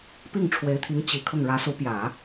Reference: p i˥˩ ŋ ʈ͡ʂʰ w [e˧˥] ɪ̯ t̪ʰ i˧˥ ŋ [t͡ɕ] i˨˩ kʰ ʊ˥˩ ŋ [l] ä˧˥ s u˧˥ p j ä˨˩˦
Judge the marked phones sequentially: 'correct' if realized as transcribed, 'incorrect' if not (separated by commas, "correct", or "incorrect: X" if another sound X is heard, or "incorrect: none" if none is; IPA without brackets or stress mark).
correct, correct, incorrect: ɻ